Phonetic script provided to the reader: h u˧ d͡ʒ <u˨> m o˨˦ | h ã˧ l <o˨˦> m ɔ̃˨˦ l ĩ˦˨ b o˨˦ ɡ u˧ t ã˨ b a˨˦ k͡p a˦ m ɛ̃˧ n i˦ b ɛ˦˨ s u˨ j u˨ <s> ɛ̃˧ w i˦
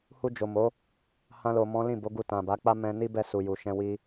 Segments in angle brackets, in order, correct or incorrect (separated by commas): incorrect, incorrect, incorrect